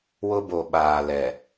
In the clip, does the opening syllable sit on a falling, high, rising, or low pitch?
high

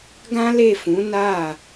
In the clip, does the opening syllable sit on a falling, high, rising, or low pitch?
high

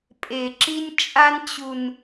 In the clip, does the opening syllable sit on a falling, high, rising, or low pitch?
low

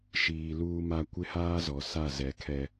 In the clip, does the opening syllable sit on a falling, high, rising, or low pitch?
low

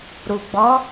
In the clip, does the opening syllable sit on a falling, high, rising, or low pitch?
low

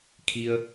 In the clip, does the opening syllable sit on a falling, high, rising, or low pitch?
low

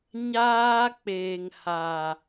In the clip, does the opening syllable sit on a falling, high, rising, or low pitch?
high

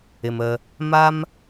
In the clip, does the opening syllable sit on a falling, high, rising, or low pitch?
low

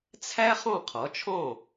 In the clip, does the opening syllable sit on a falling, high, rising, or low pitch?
high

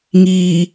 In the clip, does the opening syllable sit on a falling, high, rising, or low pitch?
low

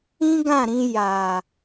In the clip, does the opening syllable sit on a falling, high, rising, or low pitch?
high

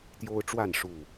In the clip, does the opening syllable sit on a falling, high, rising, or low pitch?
high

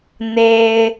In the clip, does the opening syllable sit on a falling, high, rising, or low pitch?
high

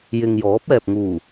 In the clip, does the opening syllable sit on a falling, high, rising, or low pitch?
low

